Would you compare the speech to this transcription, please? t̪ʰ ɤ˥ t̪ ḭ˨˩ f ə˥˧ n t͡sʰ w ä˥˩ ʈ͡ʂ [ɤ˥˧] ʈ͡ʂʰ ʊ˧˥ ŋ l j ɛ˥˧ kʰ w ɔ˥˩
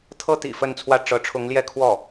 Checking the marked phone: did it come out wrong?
yes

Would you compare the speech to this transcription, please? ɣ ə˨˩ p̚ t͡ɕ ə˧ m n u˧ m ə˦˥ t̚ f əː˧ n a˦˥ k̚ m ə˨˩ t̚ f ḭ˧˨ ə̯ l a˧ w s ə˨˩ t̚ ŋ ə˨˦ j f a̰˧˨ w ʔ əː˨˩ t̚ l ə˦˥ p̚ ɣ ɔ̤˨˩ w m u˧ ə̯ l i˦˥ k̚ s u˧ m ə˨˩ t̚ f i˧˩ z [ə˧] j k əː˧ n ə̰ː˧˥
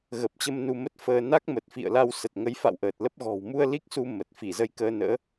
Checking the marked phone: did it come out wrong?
no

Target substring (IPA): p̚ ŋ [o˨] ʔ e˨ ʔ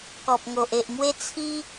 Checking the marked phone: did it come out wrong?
no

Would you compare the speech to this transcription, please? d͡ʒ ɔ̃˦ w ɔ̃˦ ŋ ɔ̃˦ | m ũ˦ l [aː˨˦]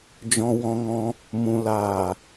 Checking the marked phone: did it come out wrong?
yes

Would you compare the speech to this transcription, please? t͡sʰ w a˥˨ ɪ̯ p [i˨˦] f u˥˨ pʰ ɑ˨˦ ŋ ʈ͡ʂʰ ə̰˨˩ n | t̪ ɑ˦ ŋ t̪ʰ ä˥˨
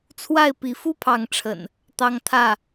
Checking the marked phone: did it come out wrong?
no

